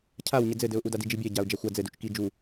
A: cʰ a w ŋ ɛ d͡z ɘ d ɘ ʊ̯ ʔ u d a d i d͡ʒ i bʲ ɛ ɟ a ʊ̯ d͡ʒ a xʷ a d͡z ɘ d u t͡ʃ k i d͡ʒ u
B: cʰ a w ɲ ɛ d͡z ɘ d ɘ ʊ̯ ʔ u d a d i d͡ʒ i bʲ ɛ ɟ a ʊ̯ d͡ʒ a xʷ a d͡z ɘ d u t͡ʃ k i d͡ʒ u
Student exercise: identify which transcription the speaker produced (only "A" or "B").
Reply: B